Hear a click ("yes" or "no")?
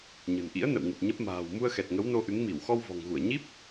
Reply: no